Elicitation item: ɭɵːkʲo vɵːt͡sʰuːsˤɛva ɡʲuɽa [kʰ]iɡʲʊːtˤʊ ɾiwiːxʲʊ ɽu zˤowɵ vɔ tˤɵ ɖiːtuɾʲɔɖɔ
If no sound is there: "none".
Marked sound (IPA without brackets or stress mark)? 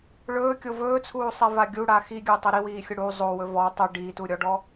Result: x